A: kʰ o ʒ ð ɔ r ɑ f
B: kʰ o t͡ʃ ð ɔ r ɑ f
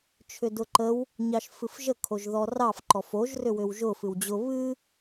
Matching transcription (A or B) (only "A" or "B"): A